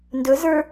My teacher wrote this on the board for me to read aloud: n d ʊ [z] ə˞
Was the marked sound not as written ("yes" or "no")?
no